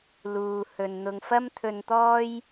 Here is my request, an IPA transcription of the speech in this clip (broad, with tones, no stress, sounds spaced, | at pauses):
l uː˨ h ɵ˨ n n̪ ʊ˨ ŋ f ɐ˥ m t̪ʰ ɵ˧ n t̪ ɔː˥ j